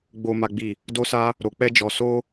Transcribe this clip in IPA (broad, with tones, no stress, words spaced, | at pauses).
ɡ͡bo˦ma˦ɡ͡bi˦˨ | do˦sa˦ | ɾo˧k͡pɛ˦d͡ʒɔ˧ so˦